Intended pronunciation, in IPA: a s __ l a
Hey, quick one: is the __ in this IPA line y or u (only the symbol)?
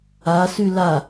y